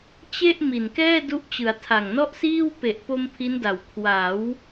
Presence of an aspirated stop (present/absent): present